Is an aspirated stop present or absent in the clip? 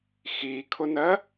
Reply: present